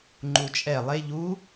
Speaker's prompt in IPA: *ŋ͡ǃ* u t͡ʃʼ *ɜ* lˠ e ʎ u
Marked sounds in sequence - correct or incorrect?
correct, incorrect

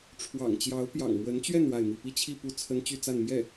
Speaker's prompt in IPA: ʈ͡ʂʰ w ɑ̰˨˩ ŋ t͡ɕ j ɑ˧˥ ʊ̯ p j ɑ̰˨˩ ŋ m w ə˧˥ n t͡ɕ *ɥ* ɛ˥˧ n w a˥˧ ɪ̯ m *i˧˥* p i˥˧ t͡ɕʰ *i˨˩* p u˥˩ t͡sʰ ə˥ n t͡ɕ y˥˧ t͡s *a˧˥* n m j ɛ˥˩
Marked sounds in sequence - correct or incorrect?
correct, incorrect, incorrect, incorrect

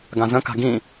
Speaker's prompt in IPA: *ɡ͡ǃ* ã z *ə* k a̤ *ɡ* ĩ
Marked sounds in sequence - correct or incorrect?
incorrect, incorrect, correct

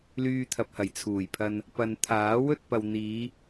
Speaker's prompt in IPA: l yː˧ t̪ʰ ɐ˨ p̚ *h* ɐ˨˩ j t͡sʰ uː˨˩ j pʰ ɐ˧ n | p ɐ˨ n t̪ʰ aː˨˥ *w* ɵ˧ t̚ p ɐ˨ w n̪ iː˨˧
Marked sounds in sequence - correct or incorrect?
correct, correct

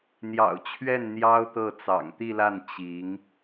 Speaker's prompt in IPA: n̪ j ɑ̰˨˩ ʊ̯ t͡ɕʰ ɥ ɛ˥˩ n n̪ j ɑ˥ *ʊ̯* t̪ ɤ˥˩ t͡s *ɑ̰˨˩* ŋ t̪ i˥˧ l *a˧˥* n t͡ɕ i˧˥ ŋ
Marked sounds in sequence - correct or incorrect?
correct, correct, incorrect

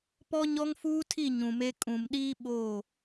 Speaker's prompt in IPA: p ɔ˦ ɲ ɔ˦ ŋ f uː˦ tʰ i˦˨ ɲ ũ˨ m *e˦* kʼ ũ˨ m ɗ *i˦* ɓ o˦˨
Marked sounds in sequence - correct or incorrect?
correct, incorrect

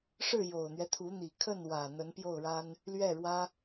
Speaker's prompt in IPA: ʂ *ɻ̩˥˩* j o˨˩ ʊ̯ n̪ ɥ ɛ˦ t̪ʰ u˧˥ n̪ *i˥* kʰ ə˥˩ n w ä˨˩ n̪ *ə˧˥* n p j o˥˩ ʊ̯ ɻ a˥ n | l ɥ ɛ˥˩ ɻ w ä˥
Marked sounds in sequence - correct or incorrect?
correct, incorrect, correct

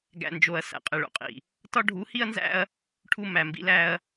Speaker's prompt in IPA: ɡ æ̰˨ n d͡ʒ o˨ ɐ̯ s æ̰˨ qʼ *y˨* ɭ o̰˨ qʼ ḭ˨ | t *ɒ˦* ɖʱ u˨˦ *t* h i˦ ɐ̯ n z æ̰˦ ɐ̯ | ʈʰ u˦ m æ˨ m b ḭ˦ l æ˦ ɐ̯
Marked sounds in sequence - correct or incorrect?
incorrect, correct, incorrect

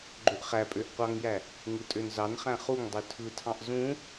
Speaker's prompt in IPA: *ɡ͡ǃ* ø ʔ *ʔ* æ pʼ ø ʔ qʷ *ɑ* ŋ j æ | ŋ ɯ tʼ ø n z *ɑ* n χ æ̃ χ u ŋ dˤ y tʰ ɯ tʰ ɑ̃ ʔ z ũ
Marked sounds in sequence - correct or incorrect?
correct, incorrect, correct, correct

